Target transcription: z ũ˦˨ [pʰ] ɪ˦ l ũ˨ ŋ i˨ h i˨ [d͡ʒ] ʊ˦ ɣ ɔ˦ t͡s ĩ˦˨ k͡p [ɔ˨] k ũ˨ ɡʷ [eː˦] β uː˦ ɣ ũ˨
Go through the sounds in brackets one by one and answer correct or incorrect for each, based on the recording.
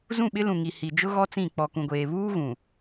incorrect, correct, correct, incorrect

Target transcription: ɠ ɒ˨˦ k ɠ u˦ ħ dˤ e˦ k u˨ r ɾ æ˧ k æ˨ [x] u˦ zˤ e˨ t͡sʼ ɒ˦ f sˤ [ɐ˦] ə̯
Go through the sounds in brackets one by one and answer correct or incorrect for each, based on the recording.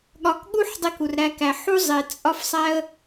incorrect, incorrect

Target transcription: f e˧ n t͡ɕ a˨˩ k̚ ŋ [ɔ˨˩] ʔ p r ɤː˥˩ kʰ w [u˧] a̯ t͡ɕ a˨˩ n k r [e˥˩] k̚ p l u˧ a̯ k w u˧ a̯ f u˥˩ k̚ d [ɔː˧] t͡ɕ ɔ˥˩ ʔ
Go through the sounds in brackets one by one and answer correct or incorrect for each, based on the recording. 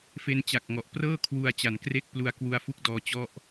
correct, correct, correct, correct

